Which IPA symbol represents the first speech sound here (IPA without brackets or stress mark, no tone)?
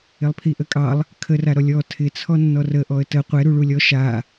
ɪ